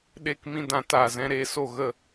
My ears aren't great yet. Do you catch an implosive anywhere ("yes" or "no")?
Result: yes